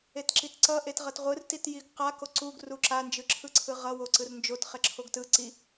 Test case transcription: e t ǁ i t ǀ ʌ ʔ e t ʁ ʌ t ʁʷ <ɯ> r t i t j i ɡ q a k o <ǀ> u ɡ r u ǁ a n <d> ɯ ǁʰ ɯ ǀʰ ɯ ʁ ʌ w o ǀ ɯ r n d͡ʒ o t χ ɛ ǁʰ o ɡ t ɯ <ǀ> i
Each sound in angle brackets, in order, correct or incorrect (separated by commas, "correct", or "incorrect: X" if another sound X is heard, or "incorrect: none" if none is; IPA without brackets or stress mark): correct, correct, incorrect: d͡ʒ, correct